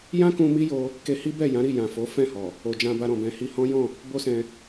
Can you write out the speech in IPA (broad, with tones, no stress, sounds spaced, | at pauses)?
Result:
j ã˦ k ũ˧ m i˦ j o˧ | k e˧ h i˦ b ɛ˦˨ j ã˨˦ ɾ i˦˨ j ã˨ f o˨˦ f ɛ̃˦˨ h ɔ˨ | o˨ d͡ʒ ã˧ b a˧ ɾ ɔ̃˨ b ɛ̃˨ h i˧ h ɔ̃˦ j ɔ̃˦˨ | b o˦ s ɛ̃˧